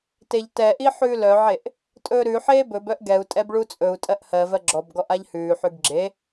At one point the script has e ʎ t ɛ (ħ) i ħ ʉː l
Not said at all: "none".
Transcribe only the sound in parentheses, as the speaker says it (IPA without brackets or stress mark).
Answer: ʔ